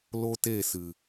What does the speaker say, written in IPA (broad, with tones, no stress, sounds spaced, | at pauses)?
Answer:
l o˦ t e˦˨ s ɨ˨